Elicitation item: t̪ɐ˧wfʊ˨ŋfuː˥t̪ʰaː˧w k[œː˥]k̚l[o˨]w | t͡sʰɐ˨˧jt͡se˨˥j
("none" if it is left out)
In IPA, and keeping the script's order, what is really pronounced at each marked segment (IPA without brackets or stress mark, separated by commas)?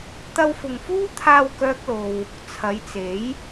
œː˥, o˧